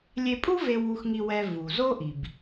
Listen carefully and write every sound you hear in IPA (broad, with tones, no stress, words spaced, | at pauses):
lʲe˧pʼu˥ve˧ wu˧xŋi˧wɛ˧ vu˩zo˥ʔi˩b